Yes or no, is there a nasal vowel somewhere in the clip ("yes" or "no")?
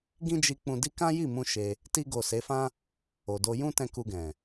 yes